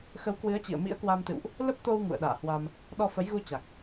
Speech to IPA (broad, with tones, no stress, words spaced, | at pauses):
xə˨˦wkwɨ˨˦ə̯t͡ɕḭ˧˨ə̯ mḭ˧˥ə̯kwa˧mt̪ɨ̰˧˨wʔ | lə˦˥p̚t̪o˧w ŋṵ˧˨ə̯ɗa̰ː˧˨hwa˧m | ɗɔ˧fə˨˦jɣu˧t͡ɕa˨˩k̚